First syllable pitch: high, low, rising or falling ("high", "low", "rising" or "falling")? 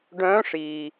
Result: rising